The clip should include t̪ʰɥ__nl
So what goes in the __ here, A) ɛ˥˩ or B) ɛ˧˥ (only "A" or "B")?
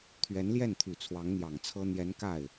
B